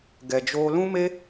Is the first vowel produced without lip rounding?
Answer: yes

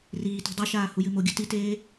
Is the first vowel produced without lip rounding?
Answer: yes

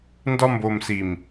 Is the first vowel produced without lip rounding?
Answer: no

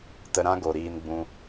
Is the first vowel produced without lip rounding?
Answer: yes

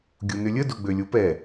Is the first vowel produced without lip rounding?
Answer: no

